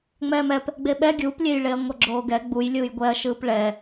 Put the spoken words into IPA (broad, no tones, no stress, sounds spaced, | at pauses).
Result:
ŋ͡m ɛː m ɛ p | ɡ͡b e ɓ ɛ ɡʲ u p lʲ e j ɭ e ɐ̯ ŋʷ ʌ ɡ͡ǁ oː ɡ ɛ ɡ͡b u j lʲ ɯː j ɡʷ ɛ ɐ̯ ʃ ɯː p ɭ ɛ